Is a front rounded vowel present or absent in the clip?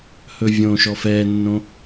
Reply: absent